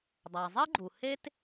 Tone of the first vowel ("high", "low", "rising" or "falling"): low